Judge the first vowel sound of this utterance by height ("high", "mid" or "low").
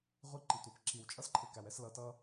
high